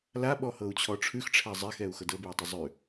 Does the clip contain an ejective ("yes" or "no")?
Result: no